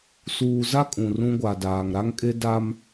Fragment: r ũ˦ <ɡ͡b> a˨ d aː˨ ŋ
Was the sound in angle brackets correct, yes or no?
no